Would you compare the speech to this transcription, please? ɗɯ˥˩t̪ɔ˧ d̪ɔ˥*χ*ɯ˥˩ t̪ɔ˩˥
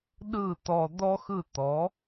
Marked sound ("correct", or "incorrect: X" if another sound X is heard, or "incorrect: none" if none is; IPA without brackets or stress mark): incorrect: x